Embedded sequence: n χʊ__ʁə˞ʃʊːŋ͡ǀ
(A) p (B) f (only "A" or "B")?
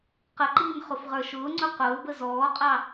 B